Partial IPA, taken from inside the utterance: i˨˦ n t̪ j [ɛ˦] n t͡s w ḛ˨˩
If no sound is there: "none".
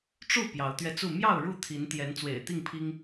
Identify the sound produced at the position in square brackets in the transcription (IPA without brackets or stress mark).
ɛ˨˦